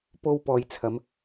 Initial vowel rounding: rounded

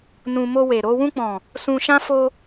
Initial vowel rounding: rounded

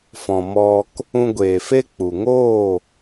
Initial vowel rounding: rounded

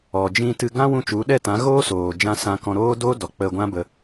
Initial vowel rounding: rounded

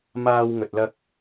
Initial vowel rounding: unrounded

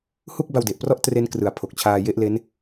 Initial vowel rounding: rounded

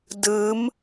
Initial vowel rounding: unrounded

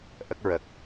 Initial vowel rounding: unrounded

